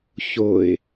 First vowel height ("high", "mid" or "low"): mid